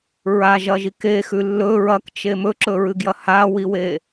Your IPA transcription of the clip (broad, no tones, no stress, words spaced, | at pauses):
ɹaʒɐʒik exʉ lːɵ ɹɐkt͡ʃe mɵǁɵɹɨɡjɐ hawiwe